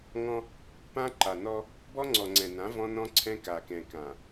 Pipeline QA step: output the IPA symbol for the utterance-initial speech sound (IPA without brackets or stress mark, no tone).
ŋ